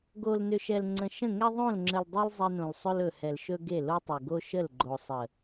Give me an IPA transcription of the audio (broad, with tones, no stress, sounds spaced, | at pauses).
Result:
ɡ o˨ l n ʏ˨ ʃ ɛ˨ l ŋ͡ǀ ə̃˨ ʃ ə̃˦˨ ŋ ɛ˦ ðˤ õ˦˨ l ŋ͡ǁ ə˨ l dˤ ɛ˦ l zˤ ɛ˦ n õ˨ l sˤ ɵ˦ l ɵ˨ h ɛ˨ l ʃ ɵ˦ ɡ e˦˨ l o˦ tˤ ɵ˨ ɡ o˦ ʃ ə˦˨ l ɡ͡ǃ o˨ sˤ ə˨